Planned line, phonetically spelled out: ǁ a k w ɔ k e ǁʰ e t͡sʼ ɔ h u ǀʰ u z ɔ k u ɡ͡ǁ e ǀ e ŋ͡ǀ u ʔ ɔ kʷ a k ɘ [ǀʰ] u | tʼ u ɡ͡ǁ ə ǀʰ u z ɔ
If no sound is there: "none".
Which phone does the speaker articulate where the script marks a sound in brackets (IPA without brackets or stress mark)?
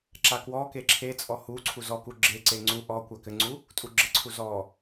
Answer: ŋ͡ǀ